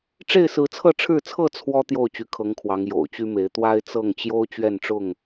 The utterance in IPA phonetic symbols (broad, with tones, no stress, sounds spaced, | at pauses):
ʈ͡ʂ e˥˨ ɪ̯ s ɹ̩˨˦ t͡sʰ ɤ˥˨ ʈ͡ʂʰ ɻ̩˥˨ t͡sʰ ɤ˥˨ t͡sʰ w ɔ˦ t̪ j o˥˨ ʊ̯ t͡ɕ y˨˦ kʰ ɤ˨˦ ŋ kʰ w ɑ˨˦ ŋ j o̰˨˩ ʊ̯ t͡ɕ y˦ m e˨˦ ɪ̯ t̪ w a˦ ɪ̯ t͡s ɤ˥˨ ŋ t͡ɕ j o˦ ʊ̯ t͡ɕ ɥ ɛ˥˨ n ʈ͡ʂ ʊ˥˨ ŋ